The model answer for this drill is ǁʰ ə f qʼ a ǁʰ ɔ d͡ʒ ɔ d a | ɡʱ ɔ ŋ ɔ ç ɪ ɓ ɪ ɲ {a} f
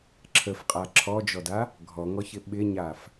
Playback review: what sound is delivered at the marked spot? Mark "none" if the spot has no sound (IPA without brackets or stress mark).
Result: a